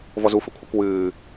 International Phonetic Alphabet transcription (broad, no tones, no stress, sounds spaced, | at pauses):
v ɔ z u f ɨ kʷʰ ɐ k w ɨː